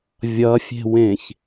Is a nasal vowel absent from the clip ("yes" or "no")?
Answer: no